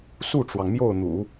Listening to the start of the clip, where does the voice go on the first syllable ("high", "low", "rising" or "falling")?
falling